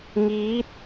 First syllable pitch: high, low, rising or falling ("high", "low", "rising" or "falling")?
rising